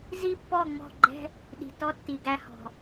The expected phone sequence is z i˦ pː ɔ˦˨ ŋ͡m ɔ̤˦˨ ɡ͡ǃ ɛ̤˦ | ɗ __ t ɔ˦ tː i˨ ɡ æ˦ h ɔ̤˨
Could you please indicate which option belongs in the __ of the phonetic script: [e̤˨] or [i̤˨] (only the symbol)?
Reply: i̤˨